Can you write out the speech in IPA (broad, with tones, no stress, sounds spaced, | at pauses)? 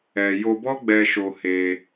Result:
ɛ˨ j o˧ b ɔ˦ ɡ͡b ɛ˧ ʃ o˧ h e˧